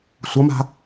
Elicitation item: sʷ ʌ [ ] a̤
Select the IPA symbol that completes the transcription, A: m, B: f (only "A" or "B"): A